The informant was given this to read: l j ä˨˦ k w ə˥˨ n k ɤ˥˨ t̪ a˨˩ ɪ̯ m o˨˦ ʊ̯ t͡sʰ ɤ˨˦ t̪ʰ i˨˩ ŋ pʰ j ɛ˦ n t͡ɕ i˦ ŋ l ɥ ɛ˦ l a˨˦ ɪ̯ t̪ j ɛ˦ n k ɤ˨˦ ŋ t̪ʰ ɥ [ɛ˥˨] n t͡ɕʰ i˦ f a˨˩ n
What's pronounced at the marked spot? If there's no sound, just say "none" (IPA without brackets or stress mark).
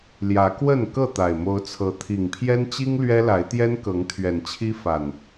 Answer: ɛ˨˩